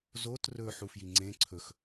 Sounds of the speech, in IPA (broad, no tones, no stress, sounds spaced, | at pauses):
z o t r ɵ ħ u f j i ŋ͡ǀ ẽ ǀʰ ɵ x